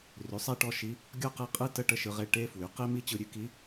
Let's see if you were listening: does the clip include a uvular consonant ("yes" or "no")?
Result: yes